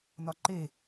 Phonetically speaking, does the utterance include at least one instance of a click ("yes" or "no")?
yes